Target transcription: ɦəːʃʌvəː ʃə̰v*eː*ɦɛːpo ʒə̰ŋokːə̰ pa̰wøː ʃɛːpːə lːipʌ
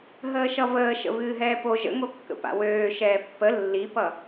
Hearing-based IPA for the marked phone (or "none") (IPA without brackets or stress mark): ɨː